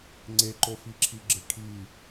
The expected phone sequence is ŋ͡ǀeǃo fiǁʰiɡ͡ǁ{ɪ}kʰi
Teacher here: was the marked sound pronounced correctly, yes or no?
yes